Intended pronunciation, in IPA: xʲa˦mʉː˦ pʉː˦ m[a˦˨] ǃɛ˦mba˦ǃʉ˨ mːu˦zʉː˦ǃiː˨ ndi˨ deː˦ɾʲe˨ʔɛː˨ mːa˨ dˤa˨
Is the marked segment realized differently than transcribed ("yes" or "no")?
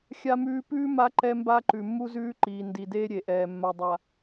yes